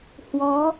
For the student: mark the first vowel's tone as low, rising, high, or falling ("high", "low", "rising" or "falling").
rising